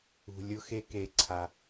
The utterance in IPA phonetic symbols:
ṳ˩ lʲʊ˧xe˧ke˩ǀʰa˩

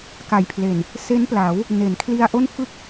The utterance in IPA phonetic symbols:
ka˨˩jpʰle˨˩n | se˦˥npla˩˦w | ne˩˦nkʰli˧a̯ʔo˥˩n fɯ˥˩k̚

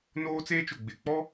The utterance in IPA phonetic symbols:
noː˦t͡seː˦t͡ʃʊ˨ ɡ͡bɪ˨k͡pɔ˦

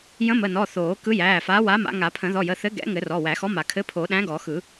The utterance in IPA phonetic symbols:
jə̃˨˥mə˩˧˩nɔ˩˧˩ θoː˨˩˦kɯ˨˥jæː˩˧˩fa˨˥ wa˨˥ma̰˨˩˦ ŋa˨˩˦pʰə̃˨˩˦ ðɔ˩˧˩jə˩˧˩θɘ˨˥ ɡɛ̰˨˥ŋɘ˨˩˦ rɔ˩˧˩wæ˨˩˦xɔ˨˥ma˨˩˦ kʰɘ˨˥pʰo˨˩˦ɗæ̃˨˥ ɡɔ˨˩˦xɯ˨˩˦

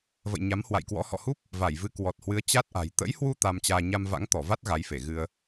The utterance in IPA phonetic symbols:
və̰˧˨jɲa˨˦mhwa̰˧˨jkwɔ̰˧˥ hɔ̰˧˨hu˦˥p̚ | va˧˩jvɨ˨˦ kwɔ˨˩t̚hwɨ˨˦ə̯ t͡ɕa˦˥t̚ʔa̤˨˩j t̪ə̰˧˥jhwu˧ t̪a˧mt͡ɕaː˧ ɲa˧mva̰˧˥ŋt̪ɔ˧˩va˦˥t̚ ɣa˨˦jfe˧˩ ɣɨ˧ə̯

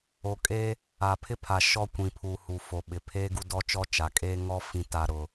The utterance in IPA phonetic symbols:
o˨kʼe˦ | a˨pʰɪ˦pʰa˨ ʃɔ˦kʷĩ˨pʰu˨ hu˨ fo˨ɓɪ˨ pʰeː˦ɡu˦dɔ˦t͡ʃɔ˦ t͡ʃa˨kʼeː˦ ŋɔ˦ fĩ˦ta˦ɾʊ˦

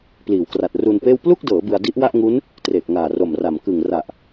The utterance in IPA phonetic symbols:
pliː˩˦wkra˨˩t̚ru˧npeː˥˩w plu˥˩k̚dɤː˩˦ bɯ˧a̯ di˦˥ʔwa˥˩ʔŋu˦˥n | treː˨˩k̚ŋaː˨˩ro˨˩mra˨˩m kɯ˨˩ŋ ra˨˩ʔ

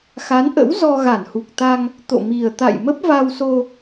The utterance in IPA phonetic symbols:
xa˨˦nʔə̰˧˥w zɔ˧ɣa˧˩nhu˨˩k̚t̪a˧ŋ | t̪o̰˧˨mi˨˩ə̯t̪a̰˧˨j mə˦˥p̚va˧wso˧

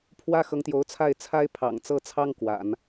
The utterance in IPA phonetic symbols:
pʰwä˥xɤ˧˥ŋt̪jo˧˥ʊ̯t͡sʰa˥˩ɪ̯ t͡sʰa˥ɪ̯pʰɑ̰˨˩ŋt͡sɤ˥˩t͡sʰɑ˥ŋ kwa̰˨˩˦n

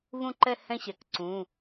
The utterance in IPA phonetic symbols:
vũ˥˧ǃɛ˥˧ hɛ̃˥˧ɕɛ˩kǀũ˩˧˩

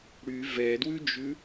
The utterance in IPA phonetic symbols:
ɽy vɛdwʉd͡ʒʉ

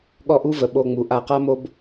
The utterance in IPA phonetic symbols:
ɠɔ˦ʔu˦və˧ ɓo˧ŋ͡mu˨˦ ʔa˧qa˦mo˦b

